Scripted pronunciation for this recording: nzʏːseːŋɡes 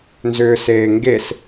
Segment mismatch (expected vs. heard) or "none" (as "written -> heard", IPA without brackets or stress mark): none